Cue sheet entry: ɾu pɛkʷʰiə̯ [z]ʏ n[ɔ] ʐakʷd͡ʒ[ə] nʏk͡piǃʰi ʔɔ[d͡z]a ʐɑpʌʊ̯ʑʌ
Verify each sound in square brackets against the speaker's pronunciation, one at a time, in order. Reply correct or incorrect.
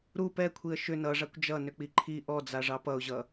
incorrect: ʃ, incorrect: ʌ, incorrect: ʌ, correct

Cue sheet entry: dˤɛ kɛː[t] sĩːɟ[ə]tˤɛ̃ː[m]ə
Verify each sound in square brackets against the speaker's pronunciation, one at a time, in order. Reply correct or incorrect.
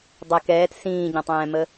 correct, incorrect: ə̃, correct

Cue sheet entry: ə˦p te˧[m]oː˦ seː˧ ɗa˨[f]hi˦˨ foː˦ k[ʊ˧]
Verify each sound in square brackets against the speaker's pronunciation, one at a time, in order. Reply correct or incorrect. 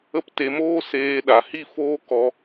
correct, incorrect: none, incorrect: ɔ˧

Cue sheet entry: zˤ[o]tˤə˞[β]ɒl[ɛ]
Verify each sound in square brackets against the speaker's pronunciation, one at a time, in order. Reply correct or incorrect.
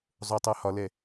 correct, incorrect: h, correct

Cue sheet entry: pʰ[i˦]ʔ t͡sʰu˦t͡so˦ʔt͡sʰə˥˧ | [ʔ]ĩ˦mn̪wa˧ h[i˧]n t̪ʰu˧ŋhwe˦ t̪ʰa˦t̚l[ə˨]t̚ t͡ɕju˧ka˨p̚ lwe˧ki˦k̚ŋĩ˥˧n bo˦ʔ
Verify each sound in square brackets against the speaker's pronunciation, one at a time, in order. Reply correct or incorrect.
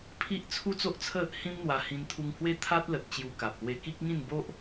correct, incorrect: h, incorrect: ĩ˧, correct

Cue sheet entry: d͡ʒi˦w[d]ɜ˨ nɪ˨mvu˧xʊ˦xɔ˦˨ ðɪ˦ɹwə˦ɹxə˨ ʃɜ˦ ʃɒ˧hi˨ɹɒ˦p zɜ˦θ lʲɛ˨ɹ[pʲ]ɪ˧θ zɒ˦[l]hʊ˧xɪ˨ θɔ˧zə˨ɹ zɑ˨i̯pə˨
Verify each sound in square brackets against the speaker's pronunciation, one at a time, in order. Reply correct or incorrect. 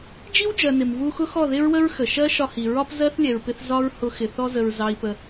incorrect: d͡ʒ, incorrect: p, incorrect: ɹ

